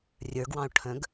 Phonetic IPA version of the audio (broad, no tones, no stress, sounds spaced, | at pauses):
rʲ ə˞ ɡ w ɑ̃ o̯ ʈʰ ə̃ ɡ